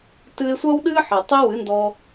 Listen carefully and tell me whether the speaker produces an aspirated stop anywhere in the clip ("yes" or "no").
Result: no